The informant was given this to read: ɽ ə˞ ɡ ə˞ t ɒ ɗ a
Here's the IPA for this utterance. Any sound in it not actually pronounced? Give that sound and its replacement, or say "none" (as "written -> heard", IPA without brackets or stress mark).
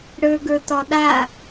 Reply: none